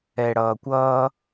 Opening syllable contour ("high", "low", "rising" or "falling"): low